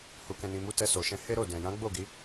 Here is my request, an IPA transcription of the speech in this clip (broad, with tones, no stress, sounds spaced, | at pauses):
h u˨ k ɛ̃˨ n ĩ˨ m u˧ t ɛ˧ s o˨ ʃ ɛ̃˧ h e˦ ɾ o˦˨ d ɛ̃˨ j ã˨˦ ɡ͡b o˦˨ ɡ i˨˦